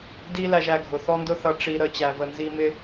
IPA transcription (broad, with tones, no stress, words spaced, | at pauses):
di˦læ˧ʒæ˧ɡʱʊ˨ θɔ˦ndʊ˦θʌ˧ ʈ͡ʂi˧ ɾə˧t͡ɕæ˧və˧nzi˦ mɪ˦